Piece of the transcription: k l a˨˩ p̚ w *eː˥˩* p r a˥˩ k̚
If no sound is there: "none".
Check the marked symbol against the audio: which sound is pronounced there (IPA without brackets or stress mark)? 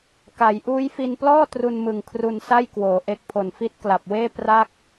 eː˥˩